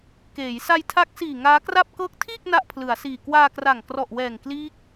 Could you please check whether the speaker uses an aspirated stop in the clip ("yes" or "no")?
yes